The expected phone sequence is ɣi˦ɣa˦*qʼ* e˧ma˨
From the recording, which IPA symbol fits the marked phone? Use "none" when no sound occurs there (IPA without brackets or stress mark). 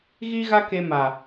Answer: k